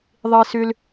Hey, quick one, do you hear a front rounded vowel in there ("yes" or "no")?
yes